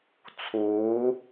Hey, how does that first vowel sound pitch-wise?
rising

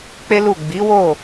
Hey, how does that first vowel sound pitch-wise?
high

